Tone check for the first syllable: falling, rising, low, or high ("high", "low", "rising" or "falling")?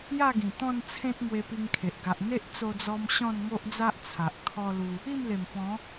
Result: falling